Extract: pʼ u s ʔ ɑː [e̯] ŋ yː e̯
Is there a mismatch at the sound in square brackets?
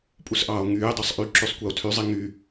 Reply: yes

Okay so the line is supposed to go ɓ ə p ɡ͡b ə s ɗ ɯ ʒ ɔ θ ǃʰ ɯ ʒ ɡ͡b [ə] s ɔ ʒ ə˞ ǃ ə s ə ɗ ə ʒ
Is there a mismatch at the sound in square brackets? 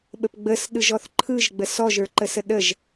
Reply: no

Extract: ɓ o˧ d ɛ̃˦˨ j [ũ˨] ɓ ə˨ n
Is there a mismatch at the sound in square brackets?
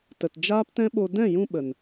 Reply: yes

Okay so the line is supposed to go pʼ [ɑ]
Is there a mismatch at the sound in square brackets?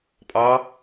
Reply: no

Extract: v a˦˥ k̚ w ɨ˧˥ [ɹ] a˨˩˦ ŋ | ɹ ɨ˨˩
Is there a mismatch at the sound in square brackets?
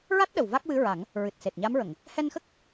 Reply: no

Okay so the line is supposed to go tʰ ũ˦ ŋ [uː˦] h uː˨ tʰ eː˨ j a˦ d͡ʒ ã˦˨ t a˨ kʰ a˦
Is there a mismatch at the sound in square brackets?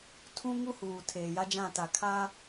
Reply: yes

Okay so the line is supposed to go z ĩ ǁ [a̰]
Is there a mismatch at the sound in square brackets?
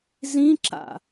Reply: no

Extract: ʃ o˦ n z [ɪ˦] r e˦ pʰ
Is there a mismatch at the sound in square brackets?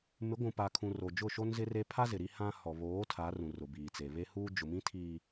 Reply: no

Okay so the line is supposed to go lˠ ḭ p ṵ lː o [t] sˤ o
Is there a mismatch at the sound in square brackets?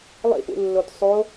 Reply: no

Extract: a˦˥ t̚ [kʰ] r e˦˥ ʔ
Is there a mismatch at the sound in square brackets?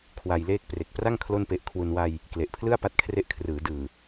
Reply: no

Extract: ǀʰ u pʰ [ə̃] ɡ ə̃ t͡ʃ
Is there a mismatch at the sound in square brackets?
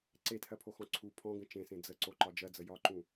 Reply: yes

